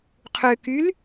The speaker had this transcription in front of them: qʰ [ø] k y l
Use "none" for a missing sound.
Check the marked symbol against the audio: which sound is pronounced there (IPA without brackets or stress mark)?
ø